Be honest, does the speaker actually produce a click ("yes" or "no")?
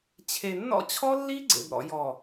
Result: yes